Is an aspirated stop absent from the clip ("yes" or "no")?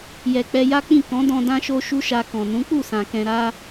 yes